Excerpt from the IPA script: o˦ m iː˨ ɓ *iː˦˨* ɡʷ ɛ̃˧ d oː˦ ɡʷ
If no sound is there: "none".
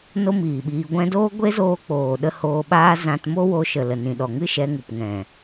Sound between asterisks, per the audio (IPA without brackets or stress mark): iː˧